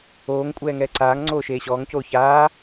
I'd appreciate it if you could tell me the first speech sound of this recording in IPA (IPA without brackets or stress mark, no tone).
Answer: oː